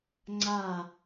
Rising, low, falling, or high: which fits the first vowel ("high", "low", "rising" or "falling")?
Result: falling